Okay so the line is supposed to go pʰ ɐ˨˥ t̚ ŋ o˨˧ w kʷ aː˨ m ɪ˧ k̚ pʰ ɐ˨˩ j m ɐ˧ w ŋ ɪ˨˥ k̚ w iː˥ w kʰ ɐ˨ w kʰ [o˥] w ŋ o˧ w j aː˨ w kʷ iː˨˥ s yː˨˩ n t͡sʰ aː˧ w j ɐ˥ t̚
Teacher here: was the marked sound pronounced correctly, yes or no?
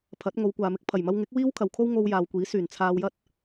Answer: yes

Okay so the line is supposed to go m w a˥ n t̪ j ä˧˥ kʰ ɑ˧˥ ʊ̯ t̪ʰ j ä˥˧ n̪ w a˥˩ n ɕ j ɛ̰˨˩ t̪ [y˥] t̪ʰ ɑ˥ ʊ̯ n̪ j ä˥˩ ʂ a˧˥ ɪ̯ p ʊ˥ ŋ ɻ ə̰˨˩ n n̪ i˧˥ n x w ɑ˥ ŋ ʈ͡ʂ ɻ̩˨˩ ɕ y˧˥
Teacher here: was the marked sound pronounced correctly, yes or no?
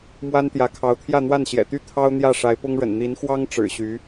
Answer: yes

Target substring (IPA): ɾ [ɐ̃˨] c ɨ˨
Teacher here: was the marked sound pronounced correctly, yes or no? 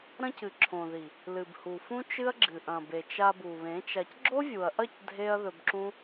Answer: no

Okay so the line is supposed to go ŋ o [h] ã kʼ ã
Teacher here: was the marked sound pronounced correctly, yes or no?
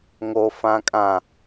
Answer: no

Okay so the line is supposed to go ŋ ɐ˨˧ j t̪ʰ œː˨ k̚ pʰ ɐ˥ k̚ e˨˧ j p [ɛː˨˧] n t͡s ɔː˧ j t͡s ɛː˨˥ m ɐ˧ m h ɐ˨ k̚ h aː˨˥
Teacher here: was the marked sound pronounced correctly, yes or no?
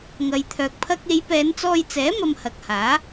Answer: yes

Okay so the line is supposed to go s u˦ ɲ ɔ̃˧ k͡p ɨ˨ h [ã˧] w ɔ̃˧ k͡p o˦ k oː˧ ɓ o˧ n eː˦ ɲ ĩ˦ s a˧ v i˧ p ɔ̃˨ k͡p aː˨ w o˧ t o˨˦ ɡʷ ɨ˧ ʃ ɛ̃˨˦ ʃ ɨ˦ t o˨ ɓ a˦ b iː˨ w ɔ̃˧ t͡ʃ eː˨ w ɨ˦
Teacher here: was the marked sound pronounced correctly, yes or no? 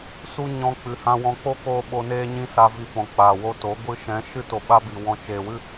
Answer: yes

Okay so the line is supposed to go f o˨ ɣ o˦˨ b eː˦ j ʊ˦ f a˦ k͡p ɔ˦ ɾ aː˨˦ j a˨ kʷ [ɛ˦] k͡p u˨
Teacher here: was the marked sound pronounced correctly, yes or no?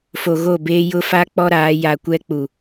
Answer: yes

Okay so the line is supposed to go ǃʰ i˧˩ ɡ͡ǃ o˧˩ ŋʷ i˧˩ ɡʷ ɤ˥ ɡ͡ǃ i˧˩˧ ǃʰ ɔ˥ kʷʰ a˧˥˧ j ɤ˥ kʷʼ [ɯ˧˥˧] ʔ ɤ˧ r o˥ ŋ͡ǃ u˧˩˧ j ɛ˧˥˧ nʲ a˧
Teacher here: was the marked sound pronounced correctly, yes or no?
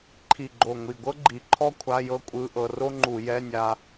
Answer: yes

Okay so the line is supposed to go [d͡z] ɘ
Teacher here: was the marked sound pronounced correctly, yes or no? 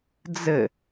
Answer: yes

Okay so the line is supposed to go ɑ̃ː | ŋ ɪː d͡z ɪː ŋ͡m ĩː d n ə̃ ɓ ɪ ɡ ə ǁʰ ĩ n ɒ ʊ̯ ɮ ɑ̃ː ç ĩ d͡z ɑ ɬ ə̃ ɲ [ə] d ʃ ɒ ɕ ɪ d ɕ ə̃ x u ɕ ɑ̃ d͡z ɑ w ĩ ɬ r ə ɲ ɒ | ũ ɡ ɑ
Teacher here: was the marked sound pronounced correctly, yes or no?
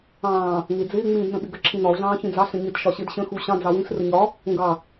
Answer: no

